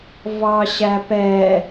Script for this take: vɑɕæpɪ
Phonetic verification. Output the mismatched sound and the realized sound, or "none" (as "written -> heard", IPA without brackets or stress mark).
ɪ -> ɛ